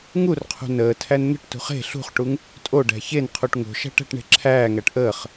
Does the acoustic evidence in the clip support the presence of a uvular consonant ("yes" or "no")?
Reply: yes